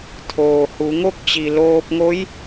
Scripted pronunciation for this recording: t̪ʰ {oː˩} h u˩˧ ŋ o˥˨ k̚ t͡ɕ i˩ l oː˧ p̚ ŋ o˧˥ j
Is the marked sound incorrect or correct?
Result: correct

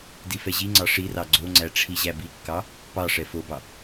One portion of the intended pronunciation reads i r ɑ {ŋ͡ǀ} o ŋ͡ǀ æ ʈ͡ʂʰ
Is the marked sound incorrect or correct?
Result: incorrect: ɡ͡ǀ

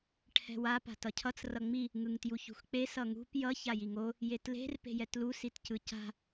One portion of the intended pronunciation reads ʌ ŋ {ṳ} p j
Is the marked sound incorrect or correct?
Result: correct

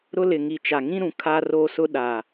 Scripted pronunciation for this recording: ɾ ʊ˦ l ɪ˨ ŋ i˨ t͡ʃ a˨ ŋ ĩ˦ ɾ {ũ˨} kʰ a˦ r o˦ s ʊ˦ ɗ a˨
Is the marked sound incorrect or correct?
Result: correct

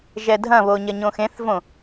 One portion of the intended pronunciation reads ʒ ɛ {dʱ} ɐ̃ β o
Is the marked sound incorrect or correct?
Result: correct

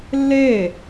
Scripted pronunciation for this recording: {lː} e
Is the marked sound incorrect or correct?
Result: correct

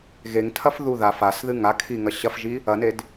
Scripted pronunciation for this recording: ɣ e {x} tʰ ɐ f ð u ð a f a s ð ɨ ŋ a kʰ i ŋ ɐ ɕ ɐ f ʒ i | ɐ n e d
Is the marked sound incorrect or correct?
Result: incorrect: ŋ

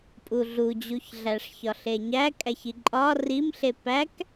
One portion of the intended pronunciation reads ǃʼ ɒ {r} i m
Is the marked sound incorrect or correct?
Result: correct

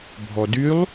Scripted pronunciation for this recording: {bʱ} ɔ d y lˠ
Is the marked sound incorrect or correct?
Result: correct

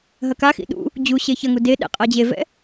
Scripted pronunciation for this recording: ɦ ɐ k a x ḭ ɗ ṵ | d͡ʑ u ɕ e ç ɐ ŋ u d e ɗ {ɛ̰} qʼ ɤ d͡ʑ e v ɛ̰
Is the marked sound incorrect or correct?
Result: correct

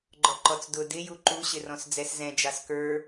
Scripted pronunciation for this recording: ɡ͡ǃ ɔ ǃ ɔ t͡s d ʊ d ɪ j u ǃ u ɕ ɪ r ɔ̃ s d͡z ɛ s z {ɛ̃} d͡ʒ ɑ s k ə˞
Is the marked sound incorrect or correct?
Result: correct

